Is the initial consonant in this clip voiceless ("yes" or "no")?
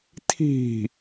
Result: yes